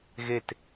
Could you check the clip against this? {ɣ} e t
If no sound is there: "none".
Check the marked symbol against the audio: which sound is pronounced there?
ɣ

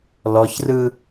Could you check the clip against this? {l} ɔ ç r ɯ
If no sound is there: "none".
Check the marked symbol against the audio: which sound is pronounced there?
l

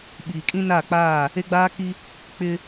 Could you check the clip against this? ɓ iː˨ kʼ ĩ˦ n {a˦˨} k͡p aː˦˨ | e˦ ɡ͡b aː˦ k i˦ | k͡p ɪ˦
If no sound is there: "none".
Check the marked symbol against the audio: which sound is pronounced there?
a˦˨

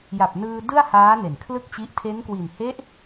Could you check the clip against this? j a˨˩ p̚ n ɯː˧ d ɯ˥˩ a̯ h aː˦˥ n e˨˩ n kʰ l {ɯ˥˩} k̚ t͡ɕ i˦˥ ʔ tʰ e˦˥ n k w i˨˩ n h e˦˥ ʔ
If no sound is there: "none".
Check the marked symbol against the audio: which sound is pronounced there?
ɯ˥˩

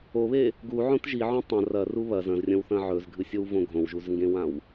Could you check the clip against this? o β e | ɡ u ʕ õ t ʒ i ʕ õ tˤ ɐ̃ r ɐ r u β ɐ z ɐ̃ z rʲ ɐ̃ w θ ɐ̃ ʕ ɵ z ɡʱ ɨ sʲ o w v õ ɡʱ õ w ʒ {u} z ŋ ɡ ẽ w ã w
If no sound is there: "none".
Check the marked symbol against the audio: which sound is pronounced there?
u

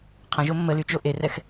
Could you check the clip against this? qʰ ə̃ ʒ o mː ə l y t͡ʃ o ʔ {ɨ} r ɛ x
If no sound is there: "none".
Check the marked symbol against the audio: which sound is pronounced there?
e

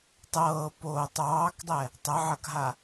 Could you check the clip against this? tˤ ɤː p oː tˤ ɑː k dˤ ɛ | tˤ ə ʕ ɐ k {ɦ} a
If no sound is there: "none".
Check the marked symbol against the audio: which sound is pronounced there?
ɦ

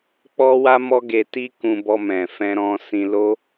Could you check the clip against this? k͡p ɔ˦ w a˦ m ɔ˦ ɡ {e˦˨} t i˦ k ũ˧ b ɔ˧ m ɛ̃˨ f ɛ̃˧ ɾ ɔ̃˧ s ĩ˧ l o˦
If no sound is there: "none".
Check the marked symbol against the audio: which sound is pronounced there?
e˧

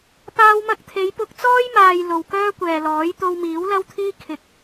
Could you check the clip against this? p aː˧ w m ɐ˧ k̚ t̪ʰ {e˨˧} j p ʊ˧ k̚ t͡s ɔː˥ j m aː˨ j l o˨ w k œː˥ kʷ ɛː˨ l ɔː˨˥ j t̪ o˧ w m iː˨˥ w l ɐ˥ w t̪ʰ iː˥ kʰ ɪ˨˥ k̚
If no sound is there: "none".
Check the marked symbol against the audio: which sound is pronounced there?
e˨˧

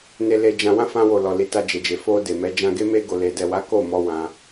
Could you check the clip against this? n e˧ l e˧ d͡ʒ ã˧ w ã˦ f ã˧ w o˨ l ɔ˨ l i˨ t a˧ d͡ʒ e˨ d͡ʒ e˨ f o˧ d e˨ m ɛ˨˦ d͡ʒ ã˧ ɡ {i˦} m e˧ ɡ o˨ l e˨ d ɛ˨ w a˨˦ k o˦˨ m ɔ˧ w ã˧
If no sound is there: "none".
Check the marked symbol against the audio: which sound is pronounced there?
e˦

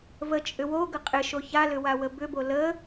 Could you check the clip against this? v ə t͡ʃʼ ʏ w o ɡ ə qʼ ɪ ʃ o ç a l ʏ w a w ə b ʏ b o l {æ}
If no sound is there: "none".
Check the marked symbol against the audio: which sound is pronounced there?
ə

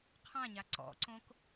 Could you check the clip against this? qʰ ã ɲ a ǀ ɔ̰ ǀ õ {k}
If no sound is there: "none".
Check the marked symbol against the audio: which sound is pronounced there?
k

